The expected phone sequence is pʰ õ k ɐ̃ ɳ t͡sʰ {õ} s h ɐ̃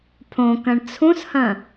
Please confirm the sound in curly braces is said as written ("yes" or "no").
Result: no